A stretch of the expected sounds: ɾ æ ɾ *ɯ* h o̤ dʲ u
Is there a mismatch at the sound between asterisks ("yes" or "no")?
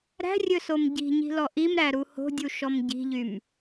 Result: yes